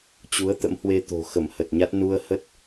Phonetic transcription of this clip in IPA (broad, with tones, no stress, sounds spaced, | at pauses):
t͡ɕ u˨˦ ə̯ t̪ ə̰˧˥ m h w e˧ t̪ o̤˨˩ x ə˧˩ m h ə˨˩ t̚ ɲ a˦˥ t̚ n u˧ ə̯ h ə˦˥ t̚